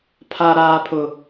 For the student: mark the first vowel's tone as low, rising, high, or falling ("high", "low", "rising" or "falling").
high